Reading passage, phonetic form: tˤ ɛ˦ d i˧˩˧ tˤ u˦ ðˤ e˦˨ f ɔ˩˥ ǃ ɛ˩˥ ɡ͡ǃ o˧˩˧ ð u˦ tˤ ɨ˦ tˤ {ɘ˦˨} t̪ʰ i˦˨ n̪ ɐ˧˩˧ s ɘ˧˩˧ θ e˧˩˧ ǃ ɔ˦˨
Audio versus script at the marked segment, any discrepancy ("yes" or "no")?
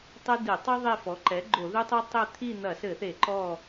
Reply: no